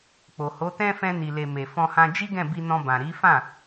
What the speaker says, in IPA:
k͡p o˨ h o˨˦ t ɛ̃˦ f ɛ̃˧ n i˨ l e˨ m e˨ f ɔ̃˧ h ã˧ d͡ʒ i˦ ɡ ɛ̃˦˨ b i˧ n ɔ̃˧ b ã˨ ɾ i˨˦ f ã˦˨

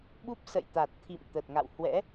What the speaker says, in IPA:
ɓ u˦˥ p̚ s ə̰˧˨ j t̪ a˨˩ t̚ t̪ʰ ḭ˧˨ m t̪ ə˨˩ t̚ ŋ a̰˧˨ w h w ɛ̰˧˥

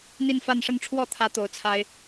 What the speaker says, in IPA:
n̪ i˥˧ n f a˥˧ n ʂ ə˥˧ n ʈ͡ʂʰ w ɔ˥˩ t̪ʰ ä˧˥ t̪ o˧˥ ʊ̯ t͡sʰ a˥ ɪ̯

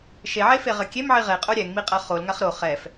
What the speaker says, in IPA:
ʃ e ʕ e f e ʁ ɘ kʲ e m ʕ i ʁ e qʼ o ɾʲ ɛ ŋ m i qʼ ɐ χ o l ŋ a χ ɾ o χ ɛ f

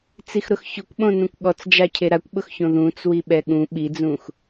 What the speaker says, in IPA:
t͡s i x ɾ ʊ x ç ʊ kʷ ɓ õ n ũ kʷ ɠ ɔ t͡s d͡ʒ a cʰ e ɾ a kʷ ɓ ʊ x ç õ ð ũ t͡s w i ɓ ɛ ɠ ũ ɓ i d͡z ũ x

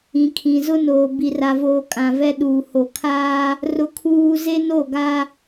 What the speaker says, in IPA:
ĩ˨ kʰ ĩ˨ z ʊ˦ n oː˨ b i˨ r a˨ v oː˨ kʼ ã˨ v ɛ˦ ɗ uː˨ h o˨ kʰ aː˦ | r ʊ˦ kʰ uː˦ z e˦ n o˦˨ ɡ a˦

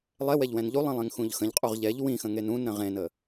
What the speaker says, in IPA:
lˠ ɛ w ɛ ʎ w ɛ̃ n ʎ u lˠ ĩ lˠ ẽ ŋ x ũ ʎ x ə̃ ʎ qʼ u ʁ ʎ ɛ ʎ w ĩ x ə̃ ŋ e n ũ n ɾ ə̃ ʁ ẽ n ə

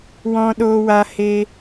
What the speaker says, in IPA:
w ɔ̃˨ ɗ oː˨ w a˨ h e˧

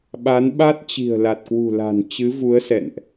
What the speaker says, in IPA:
ɓ a˨˦ n ɓ a˦˥ t̚ t͡ɕ i̤˨˩ ə̯ l a˨˩ t̚ k w ṳ˨˩ l a̤˨˩ n t͡ɕ ɨ˨˦ v u˨˦ ə̯ s ɛ̰˧˨ n ʔ

